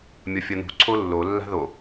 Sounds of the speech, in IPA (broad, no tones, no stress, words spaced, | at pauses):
mʲʌfʲʌnṳ ǀʰolːo lːa̤ðo